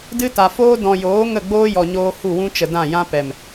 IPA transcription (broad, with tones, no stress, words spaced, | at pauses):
dɨ˦ta˨foː˦ dɔ̃˨joː˨˦ ŋə˦˨ɡ͡boː˦ jɔ˨ɲoː˧ hu˦˨wũ˦t͡ʃə˨ dã˦˨jã˦pɛ˨m